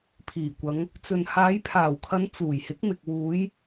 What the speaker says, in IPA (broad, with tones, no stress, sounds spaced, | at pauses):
pʰ iː˨˩ kʷ ɐ˨˧ ŋ | t͡s ɵ˨ n h aː˨˧ j pʰ aː˨˩ w kʰ ɐ˨˧ n t͡s uː˨˩ j h ɪ˨˥ k̚ m ɪ˨ k̚ w uː˨˧ j